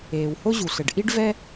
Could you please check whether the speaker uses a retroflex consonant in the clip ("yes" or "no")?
yes